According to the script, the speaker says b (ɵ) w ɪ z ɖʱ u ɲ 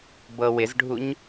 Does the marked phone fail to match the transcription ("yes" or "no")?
yes